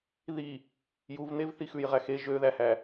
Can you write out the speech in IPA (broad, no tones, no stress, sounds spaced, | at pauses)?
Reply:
ð i | j u v n̪ e v θ i x ʉ j ʁ æ x e ʒ ø ð æ h æ